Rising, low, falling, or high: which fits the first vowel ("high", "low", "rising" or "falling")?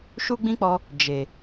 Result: high